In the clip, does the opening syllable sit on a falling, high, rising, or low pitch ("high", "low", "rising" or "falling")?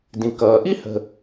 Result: low